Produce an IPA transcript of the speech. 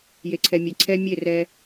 j e˨ ǀʰ ɛ˨ mʲ e˨ ǀʰ ɛ˦ mʲ e˦˨ r ɛ˦

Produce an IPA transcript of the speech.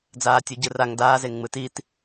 d͡z aː tʲ u ɟ ɯ r a ŋ d aː z e ŋ ŋ͡m ɯ t i t

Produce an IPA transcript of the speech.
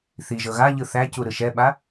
θ i ʒ ɤ ɣ a ʎ ɯ θ æ c u ɾ ɯ ʃ ɛ ɓ a

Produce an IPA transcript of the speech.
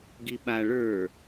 ɡ i ɓ a ɭ ə˞

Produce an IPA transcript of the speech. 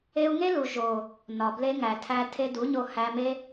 e˧ u̯ ŋ e˦ l u˨ ʒ o˨ | n ɒ˨ b l e˧ ŋ æ˨ tʰ æ˧ tʰ e˧ d u˨˦ ɲ o˧ h æ˧ m e˦

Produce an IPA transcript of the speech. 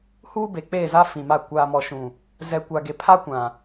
h uː˦ b e˨ k͡p eː˦˨ z a˦ f ĩ˨ m a˦˨ kʷ aː˨ m ɔ˨ ʃ ũ˨ | z ɛ˨ kʷ a˨ ɡ e˨ pʰ a˦ kʷ ã˨

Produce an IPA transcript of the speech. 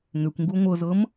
ŋ ʏ kʷ ŋ ɡ u ŋʷ ɤ z ɤ m

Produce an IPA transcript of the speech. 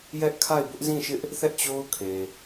j ɛ˦ ʔ kʰ a˦˨ ɪ̯ b ʊ˦ ʔ z ĩ˦˨ ʃ ɪ˦ ʔ | θ ɛ˦ ʔ t͡ɕ o˦ ʊ̯ kʰ e˨

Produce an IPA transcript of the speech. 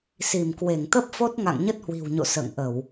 s i˧˩ m k w e˧˩ ŋ t̪ ə˦˥ p̚ f o˦˥ t̚ ŋ a̰˧˨ ŋ ɲ ə˦˥ t̚ h w i̤˨˩ w ɲ o̰˧˨ s ə̰ː˧˨ ŋ ʔ ə˧˩˨ w

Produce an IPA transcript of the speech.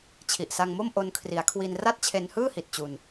t͡ɕʰ i˨˩ ʔ s a˧ ŋ m o˥˩ m ʔ o˧ n kʰ r i˩˦ a̯ kʰ w i˧ n r a˥˩ t̚ t͡ɕʰ e˧ n h ɯː˥˩ h i˨˩ t̚ t͡ɕ u˧ n

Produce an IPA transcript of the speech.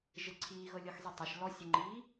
ʒ ɪ ǀʰ iː ɣ ɤ lʲ ɤ x zˤ i tˤ ɛ ʃ l ɔ sʲ ɪ ŋ͡ǃ iː

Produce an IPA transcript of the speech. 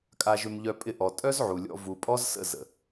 kʼ a˧ ʒ ʏ˧ m ʎ œ˧ pʼ ɪ˧ ʔ ɔ˨ tʼ œ˦ z ʕ u˨ lʲ ɔ̰˧ v u˨ pʼ ɔ˦ z s ə̰˦˨ z ə̰˨

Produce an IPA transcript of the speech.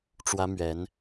ʈ͡ʂ w ä˥ m ɥ ɛ˧˥ n

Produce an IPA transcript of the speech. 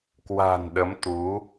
k w a̤˨˩ n ɗ ə˨˦ m t̪ u˨˦

